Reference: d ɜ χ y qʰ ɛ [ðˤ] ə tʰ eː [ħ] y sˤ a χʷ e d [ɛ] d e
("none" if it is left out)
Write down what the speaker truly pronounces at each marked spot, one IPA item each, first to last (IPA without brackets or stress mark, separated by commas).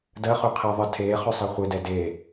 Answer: ðˤ, χ, ɛ